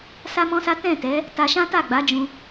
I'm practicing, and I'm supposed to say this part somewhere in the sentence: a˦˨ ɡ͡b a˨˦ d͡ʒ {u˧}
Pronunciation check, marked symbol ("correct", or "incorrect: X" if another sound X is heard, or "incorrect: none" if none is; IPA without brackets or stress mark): incorrect: ũ˧